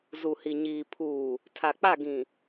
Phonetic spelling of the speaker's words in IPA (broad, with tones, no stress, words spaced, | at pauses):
zu˨hi˨ ɲiː˨ pʰuː˨ | tʰa˨k͡pa˦˨ɡĩ˨